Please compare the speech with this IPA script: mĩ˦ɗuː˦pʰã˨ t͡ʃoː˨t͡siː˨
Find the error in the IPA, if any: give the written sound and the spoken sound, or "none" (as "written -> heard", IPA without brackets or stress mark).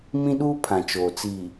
none